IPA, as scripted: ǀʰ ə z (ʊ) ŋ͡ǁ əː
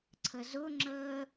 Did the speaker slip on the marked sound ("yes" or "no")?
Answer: no